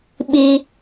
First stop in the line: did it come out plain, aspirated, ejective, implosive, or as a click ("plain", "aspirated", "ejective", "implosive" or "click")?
implosive